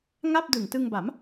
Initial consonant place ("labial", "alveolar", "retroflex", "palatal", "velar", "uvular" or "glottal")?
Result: velar